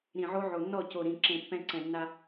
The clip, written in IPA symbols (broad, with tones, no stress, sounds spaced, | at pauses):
ɾ ĩ˨ ʕ o˦ ʕ o˨ nː ɔ˦˨ c o˨ ɾ ĩ˨ ǁ ẽ˨ pː ɛ̃˦ ǀ ɛ̃˨ nː a˦